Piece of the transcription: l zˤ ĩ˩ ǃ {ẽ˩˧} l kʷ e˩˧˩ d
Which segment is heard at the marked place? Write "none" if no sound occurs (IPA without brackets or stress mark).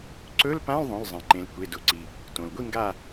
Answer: ẽ˩˧